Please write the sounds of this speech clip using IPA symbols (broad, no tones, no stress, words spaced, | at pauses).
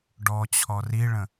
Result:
ɖɔ t͡ɕʰɔriɭə̃